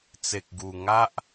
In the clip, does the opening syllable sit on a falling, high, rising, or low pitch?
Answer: low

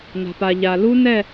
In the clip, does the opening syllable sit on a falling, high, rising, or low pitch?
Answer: low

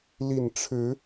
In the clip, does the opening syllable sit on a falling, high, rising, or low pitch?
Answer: low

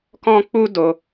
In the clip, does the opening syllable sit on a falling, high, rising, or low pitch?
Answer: high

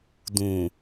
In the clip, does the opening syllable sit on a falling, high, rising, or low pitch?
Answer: low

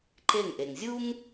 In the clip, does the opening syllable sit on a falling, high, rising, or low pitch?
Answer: falling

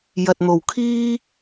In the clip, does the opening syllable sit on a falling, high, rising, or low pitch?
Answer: low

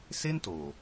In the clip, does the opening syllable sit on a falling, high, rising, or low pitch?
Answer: high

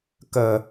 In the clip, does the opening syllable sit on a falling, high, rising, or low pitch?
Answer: low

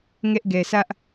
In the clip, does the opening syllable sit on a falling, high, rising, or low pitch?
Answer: high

